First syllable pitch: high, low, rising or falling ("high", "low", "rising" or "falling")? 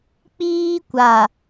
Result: high